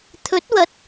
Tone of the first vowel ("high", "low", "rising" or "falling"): rising